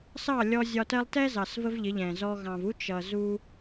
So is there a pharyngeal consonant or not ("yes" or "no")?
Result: no